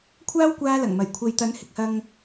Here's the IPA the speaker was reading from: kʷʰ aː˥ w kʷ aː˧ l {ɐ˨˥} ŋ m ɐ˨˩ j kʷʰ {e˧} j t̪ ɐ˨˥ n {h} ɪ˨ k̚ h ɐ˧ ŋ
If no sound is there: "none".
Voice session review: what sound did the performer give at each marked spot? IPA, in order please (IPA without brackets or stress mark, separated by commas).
ɐ˨˩, e˨, h